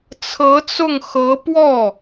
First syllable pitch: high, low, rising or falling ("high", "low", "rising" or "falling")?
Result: rising